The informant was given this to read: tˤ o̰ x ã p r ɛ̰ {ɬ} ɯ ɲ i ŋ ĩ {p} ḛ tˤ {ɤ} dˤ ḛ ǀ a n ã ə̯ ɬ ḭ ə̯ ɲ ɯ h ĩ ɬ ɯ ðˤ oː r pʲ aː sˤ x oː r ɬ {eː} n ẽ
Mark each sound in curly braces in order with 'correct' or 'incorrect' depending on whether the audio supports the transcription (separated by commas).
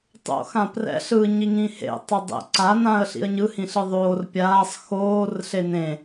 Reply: correct, incorrect, correct, incorrect